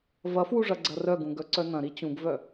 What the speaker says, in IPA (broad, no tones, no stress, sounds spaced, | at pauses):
v ɐ f w u ʐ ɐ ɡ͡ǀ ɐ r œ ɡ ũ ɡ œ ǀ œ n ɐ̃ ɾ i t͡ɕ ũ ɡ v œ